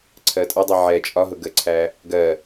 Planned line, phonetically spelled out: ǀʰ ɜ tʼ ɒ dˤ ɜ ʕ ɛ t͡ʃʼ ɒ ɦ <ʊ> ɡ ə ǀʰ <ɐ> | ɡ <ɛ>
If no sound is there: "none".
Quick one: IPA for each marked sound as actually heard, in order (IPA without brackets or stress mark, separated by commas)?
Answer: ʊ, æ, ɜ